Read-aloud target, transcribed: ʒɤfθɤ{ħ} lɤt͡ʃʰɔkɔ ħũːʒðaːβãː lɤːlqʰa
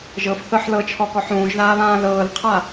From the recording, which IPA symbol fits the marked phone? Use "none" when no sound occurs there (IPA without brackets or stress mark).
ħ